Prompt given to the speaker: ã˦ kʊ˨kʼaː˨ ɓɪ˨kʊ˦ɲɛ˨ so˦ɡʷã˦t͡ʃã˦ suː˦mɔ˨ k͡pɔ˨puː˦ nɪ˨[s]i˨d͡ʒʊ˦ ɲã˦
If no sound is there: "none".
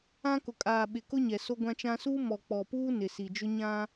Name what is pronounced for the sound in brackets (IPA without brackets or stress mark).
s